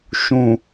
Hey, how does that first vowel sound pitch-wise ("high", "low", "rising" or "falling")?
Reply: low